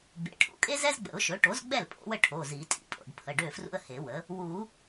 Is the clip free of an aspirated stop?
no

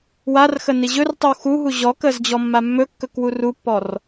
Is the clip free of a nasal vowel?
yes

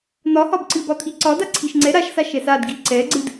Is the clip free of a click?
no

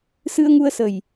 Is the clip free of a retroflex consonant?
yes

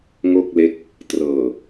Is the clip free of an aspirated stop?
yes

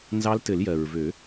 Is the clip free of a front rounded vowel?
no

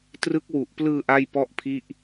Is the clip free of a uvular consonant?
yes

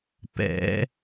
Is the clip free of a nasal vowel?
yes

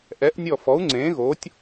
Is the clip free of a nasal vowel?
no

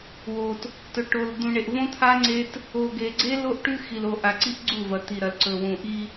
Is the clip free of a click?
no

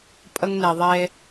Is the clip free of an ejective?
no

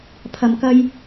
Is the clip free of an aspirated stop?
no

